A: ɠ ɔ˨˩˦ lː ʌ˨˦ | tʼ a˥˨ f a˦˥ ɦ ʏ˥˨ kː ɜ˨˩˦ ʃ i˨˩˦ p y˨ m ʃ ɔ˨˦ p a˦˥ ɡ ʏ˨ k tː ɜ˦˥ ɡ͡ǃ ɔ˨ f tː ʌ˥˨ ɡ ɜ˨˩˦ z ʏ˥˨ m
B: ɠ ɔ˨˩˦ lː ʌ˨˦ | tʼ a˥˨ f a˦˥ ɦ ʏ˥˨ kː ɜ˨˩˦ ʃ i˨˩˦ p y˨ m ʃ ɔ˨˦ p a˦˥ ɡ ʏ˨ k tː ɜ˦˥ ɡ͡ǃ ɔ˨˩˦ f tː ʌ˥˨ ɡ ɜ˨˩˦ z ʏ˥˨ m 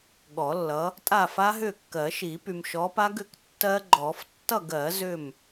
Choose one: B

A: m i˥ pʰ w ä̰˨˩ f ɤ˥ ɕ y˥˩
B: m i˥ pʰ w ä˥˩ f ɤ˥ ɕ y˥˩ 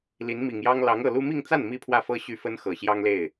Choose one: B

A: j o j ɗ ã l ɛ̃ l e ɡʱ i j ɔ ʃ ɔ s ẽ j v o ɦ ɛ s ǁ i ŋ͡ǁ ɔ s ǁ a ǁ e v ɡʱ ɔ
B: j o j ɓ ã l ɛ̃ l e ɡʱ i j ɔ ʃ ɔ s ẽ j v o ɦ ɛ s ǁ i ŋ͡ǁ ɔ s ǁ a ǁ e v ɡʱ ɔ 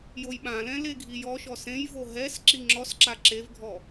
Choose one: B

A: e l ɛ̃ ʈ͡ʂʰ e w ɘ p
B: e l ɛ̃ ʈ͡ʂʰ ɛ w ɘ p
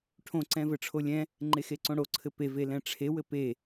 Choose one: A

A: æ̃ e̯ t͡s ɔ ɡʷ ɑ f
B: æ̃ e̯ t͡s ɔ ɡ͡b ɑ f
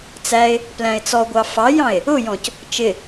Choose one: A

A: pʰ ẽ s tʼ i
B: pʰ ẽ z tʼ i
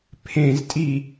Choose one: B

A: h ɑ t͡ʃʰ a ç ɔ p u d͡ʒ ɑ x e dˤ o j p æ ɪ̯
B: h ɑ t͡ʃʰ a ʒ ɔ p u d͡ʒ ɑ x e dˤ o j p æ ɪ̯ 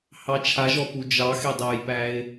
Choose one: B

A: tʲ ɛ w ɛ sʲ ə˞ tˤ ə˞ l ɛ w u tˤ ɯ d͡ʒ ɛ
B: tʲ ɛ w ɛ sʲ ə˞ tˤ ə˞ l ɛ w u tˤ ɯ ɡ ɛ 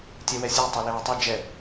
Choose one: A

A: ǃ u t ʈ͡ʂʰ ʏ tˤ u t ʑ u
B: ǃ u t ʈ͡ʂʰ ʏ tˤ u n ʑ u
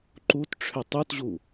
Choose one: A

